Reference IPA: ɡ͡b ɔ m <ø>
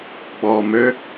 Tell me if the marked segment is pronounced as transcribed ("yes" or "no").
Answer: yes